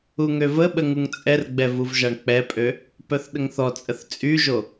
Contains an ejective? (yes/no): yes